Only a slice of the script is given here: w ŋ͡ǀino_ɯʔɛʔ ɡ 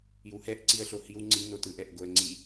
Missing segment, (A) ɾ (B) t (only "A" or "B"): B